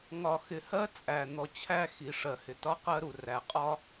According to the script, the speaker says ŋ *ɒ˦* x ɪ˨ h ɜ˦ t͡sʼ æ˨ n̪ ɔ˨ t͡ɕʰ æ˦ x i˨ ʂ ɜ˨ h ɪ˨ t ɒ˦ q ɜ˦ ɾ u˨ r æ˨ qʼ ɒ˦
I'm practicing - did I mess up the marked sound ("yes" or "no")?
yes